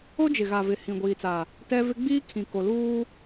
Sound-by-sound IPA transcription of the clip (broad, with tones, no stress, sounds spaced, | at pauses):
o˦ d͡ʒ ɪ˨ ɣ a˨ v ɪ˨ h ĩ˨ ɡʷ iː˨ t͡s a˨ | t ɛ˦ v ɪ˦ ɡ͡b iː˦ kʰ ĩ˨ k o˨ l uː˦